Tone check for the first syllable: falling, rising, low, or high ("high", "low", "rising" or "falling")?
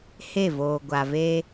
falling